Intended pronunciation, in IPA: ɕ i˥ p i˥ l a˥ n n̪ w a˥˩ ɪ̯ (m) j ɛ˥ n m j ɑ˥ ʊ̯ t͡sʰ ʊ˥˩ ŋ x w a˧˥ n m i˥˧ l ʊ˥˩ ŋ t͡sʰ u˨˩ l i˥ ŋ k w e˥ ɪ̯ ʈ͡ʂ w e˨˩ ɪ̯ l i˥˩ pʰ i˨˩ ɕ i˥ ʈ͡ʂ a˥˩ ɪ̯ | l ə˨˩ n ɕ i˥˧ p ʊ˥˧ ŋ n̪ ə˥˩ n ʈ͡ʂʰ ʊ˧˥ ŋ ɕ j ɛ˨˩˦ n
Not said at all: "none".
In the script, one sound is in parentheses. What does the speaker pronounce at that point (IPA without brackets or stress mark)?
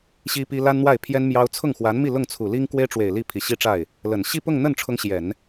pʰ